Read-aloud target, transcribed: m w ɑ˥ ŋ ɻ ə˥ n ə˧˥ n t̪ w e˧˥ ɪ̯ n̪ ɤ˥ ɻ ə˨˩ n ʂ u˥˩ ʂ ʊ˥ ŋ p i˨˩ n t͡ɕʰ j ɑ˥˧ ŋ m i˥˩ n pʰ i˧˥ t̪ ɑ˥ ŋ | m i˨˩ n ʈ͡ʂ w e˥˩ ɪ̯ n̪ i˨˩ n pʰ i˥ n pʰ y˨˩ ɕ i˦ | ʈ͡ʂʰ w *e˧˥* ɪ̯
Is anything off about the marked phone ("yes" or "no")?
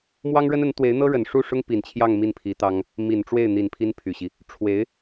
no